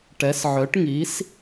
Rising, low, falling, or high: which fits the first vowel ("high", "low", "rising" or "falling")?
rising